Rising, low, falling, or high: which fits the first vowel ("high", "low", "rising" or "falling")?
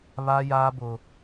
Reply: high